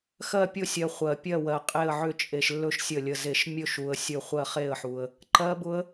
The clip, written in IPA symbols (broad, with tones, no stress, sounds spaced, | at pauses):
x ɜ˦˨ pʲ ʊ˦˨ sʲ ɜ˨ χʷ ɜ˨ pʲ ɜ˦˨ w ɜ˨ qʼ e˦˨ ə̯ ʕ ʏ˦˨ t͡ʃʼ e˨ ʃ lː ɵ˦˨ ʃ sʲ ə˦˨ lʲ ə˦˨ z e˦˨ ʃ mʲ ɵ˦˨ ʃ u˨ ə̯ sʲ ɵ˦˨ χʷ ɜ˦˨ χ e˦˨ ə̯ ħ u˨ ə̯ | ǃ ɜ˦˥ b ʊ˦˥ ə̯